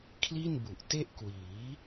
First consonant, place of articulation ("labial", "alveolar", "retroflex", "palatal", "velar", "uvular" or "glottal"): velar